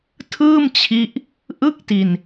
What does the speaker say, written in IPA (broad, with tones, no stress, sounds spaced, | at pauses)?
tʰ ɯː˥˩ m t͡ɕʰ i˦˥ ʔ | ʔ ɯ˥˩ k̚ t i˧ n